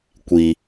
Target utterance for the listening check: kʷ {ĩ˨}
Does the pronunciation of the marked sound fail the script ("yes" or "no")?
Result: yes